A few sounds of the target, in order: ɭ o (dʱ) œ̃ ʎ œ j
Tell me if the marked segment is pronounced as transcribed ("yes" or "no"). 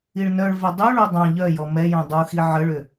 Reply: no